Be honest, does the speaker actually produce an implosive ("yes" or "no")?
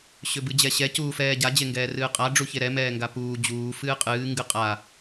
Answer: no